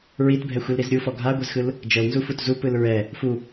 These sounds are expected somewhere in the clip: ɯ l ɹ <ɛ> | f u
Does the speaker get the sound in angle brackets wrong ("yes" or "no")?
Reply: no